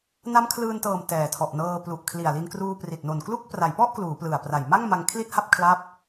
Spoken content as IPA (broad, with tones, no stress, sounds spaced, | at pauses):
n a˦˥ m kʰ l ɯː˧ n t ɤː˨˩ m t ɛː˨˩ tʰ ɔ˨˩ ʔ n ɤː˧ p l u˨˩ ʔ kʰ l i˨˩ a̯ l i˧ n k r uː˧ p r i˨˩ t̚ n o˨˩ n k l u˥˩ k̚ p r a˩˦ j p ɔ˥˩ ʔ k l uː˩˦ p l ɯ˨˩ a̯ p r a˨˩ j m a˥˩ ŋ m a˧ ŋ kʰ l i˥˩ t̚ h a˥˩ p̚ kʰ l a˦˥ p̚